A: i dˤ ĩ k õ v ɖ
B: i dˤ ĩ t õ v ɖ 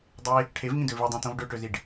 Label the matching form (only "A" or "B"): B